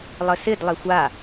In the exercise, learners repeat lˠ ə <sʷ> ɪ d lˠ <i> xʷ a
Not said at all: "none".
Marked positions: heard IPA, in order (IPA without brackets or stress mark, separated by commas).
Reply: s, e